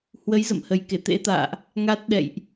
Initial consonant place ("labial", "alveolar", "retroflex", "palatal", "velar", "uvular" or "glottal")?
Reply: glottal